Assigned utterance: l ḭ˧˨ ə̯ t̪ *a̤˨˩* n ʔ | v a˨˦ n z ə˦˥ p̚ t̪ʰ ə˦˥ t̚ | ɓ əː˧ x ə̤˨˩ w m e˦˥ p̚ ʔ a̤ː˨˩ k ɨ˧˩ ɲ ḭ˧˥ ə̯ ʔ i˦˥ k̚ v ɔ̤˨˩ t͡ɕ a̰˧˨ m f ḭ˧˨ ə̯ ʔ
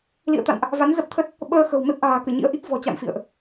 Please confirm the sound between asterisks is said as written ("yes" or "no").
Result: no